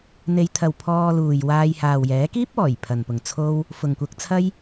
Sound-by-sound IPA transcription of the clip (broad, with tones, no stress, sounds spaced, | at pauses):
n̪ e˨˧ j t̪ʰ ɐ˨ w pʰ ɔː˧ l uː˨ j w aː˧ j h aː˨ w j ɛː˨˥ k iː˥ p̚ ɔː˨˩ j pʰ ɐ˨ n p ʊ˨ ŋ t͡sʰ o˥ w | f ʊ˨ ŋ kʷ ɐ˧ k̚ t͡sʰ ɐ˥ j